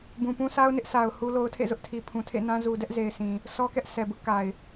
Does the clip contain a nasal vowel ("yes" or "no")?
yes